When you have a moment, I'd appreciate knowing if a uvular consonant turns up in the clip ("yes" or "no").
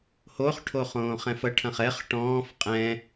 yes